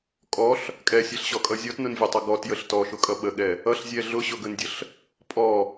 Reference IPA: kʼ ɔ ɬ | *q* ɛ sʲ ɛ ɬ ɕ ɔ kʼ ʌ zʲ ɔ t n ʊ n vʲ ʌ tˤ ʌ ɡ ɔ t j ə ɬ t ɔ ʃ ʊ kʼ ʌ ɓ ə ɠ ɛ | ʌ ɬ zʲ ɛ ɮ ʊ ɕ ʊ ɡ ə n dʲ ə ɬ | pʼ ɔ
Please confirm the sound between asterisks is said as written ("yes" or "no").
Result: no